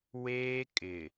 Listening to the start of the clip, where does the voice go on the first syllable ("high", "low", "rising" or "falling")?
high